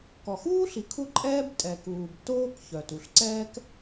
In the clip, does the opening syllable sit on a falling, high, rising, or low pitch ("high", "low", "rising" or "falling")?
low